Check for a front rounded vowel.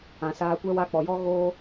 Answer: absent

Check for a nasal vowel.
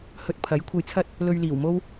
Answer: absent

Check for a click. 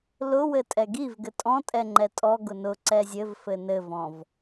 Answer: present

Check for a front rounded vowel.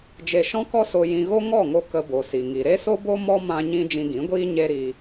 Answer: absent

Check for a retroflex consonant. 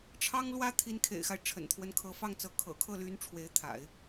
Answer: present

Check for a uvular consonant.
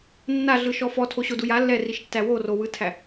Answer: absent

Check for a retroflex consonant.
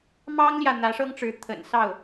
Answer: present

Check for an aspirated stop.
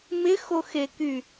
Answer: absent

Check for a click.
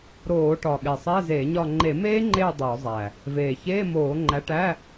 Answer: present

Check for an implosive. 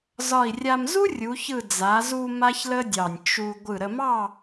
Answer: absent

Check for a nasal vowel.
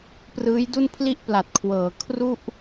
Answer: absent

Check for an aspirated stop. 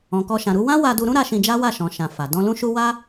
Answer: absent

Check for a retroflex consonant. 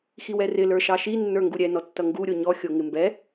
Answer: absent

